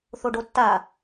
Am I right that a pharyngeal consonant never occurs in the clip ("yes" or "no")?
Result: yes